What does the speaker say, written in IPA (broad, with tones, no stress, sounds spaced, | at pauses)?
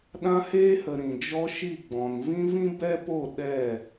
ɗ ã˦ h eː˦ h ə˨ ɾ ĩ˨ d͡ʒ ɔ˦ ʃ i˦˨ ɡ͡b ɔ̃˨ n v ĩ˦ v ĩ˦ b ɛ˦ p o˦˨ ɗ ɛ˦˨